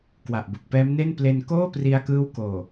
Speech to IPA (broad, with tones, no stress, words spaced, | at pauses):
kwa˨˩ʔbu˨˩k̚pɛː˦˥mne˥˩n ple˧nkoː˥˩pri˧a̯kɯː˦˥w koː˨˩